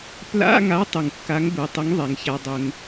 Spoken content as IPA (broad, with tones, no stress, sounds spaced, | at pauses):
p l a̰˧˥˧ ŋ a˨˥ tˤ u˩ ŋ kː a˨˥ ŋ b u˩˧ tˤ ʊ˨˥ ŋ ðˤ ɛ˩˧ ŋ ç a˧ dˤ ʊ˧ ŋ